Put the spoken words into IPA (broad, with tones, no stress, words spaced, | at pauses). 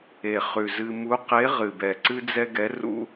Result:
e˨˩χʉ˨˩zɨ˧ mu˧˥qe˧˥ ʁɨ˨˩bɛ˨˩ ǀɨ˥d͡zɛ˥ ɡɛ˧˥rṵ˥